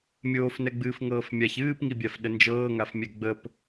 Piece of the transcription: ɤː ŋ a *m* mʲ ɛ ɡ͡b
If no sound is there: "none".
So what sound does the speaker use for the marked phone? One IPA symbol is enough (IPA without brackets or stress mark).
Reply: f